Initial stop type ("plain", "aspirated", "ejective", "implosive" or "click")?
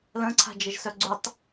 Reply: click